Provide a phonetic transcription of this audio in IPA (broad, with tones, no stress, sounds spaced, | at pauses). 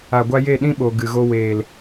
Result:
a˨ ɡʷ a˧ j e˦˨ ɗ ĩ˦ ɓ o˨ ɡ ɨ˨ ɣ o˧ w eː˨ l